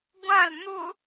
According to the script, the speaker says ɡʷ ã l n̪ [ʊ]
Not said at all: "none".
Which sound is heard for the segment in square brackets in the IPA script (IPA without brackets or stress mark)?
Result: ʊ